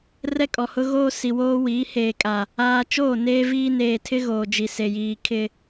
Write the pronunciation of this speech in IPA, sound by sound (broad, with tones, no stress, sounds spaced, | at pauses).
r ɛ˦ kʼ ɔ˨ h ʊ˦ ɣ oː˦ s i˨ w oː˦ w iː˨˦ h eː˨ kʼ a˨ | aː˦ t͡ʃ oː˦˨ n eː˦ v iː˦ n eː˨ tʰ ɪ˦ ɣ oː˨ d͡ʒ i˨ s e˨ j iː˨ kʰ ɪ˨